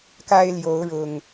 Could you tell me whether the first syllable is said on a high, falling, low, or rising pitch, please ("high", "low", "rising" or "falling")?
high